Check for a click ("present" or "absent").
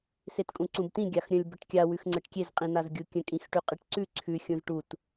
present